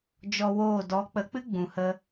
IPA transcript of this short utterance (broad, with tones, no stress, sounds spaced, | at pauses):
d͡ʒ ɔ˧ w oː˦˨ d ɔ˨˦ k͡p ə˨˦ k͡p ɨ˦ ɡ͡b ũ˨ h ə˧